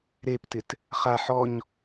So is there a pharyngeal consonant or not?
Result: yes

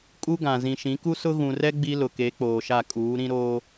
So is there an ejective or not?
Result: yes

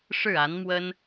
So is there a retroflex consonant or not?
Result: yes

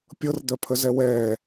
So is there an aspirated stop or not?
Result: yes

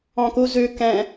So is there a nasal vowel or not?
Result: yes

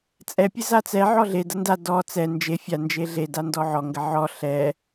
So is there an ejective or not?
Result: yes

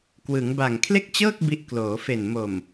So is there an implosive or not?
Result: no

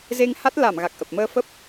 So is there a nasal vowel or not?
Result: no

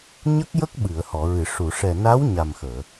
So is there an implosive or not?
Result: yes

